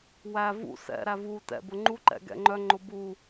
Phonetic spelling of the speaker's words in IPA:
w æ v ṵ s ɛ̰ ɾ æ v u t ɛ̰ b ʊ ŋ͡ǃ u ǃ ɛ̰ ɡ ɛ̰ ŋ͡ǃ œ ŋ͡ǃ ʊ b u

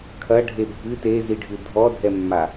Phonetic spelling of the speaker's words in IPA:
kʰ ɐ ɖʱ e bʱ ɨ t e z i ɖʱ ɨ dʱ ɔ dʱ ɛ mː a

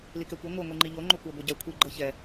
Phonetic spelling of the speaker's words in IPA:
l i k ɛ kʷ i ŋʷ ɤ ŋʷ i ŋ͡ǃ i ʎ o ŋ͡ǃ o kʷ ɤ ɡʷ a ɟ ɛ kʷʰ i ɡ͡ǃ ɤ ç ɛ

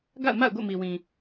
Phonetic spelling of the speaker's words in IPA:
ɡ a̰˦˨ ʊ̯ m a̰˦˨ ʊ̯ ɡ o̰˦˨ m i˨ w ĩ˨

